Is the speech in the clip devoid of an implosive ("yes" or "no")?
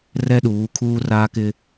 no